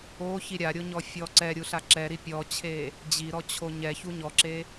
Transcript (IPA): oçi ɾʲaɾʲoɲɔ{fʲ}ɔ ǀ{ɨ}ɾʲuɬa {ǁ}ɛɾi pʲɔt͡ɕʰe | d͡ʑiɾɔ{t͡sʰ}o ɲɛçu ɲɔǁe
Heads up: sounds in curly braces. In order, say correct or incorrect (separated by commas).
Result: correct, incorrect, correct, incorrect